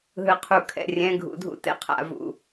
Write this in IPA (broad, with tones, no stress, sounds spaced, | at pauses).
ɦ ɯ˨ qʰ u˨ kʰ ɛ̰˨ rʲ ɛ̃˨˦ ɡʱ ṵ˨ dʱ ṵ˦ t ɛ̰˦ qʰ a̰˨ v ṵ˨